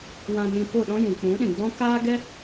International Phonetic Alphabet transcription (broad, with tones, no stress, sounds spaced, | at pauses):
w ã˧ n ĩ˧ p o˦˨ ɗ ɔ̃˦ j ũ˨ k͡p ũ˨˦ ɗ ĩ˨ ɡ͡b ɔ̃˦ k aː˦ ɡ ɛ˦